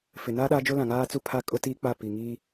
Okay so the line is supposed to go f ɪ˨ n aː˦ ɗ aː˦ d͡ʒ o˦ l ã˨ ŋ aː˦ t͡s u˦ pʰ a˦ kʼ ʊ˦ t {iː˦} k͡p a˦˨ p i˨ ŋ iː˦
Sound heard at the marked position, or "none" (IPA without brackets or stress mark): iː˦